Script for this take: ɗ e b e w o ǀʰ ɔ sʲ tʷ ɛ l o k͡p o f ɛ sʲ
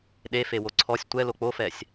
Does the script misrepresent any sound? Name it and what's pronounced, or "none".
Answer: b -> f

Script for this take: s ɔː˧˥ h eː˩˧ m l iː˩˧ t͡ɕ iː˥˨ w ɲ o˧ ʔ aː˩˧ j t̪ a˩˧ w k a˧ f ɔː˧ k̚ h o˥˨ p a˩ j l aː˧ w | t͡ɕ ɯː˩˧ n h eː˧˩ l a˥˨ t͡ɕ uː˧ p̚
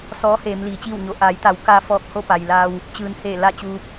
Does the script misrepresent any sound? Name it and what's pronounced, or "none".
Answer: none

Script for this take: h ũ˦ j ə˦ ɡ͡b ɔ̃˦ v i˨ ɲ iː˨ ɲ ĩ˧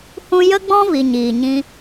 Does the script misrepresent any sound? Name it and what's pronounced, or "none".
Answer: none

